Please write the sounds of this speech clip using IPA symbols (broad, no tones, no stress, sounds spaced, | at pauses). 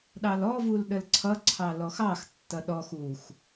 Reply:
ɗ ɑ l ɔ v u l ɗ ə l ǀʰ ʌ ǀʰ ɑ l ɔ x ɑ x tː ʌ ɗ ɔ x u x